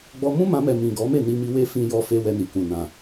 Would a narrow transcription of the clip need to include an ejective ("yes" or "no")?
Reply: no